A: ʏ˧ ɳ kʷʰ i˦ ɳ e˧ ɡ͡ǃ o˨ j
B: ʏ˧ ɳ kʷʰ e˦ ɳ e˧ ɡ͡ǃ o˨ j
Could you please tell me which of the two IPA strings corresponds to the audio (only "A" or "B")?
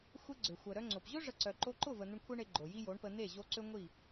B